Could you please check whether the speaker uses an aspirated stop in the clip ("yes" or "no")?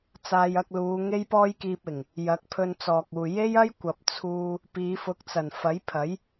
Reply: yes